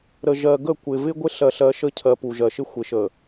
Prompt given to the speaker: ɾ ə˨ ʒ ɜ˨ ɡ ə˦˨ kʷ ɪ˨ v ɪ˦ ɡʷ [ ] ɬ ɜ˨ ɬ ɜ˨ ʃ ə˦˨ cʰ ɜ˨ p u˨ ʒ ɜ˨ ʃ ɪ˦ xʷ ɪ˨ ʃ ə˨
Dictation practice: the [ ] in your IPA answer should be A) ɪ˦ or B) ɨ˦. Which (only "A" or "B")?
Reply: A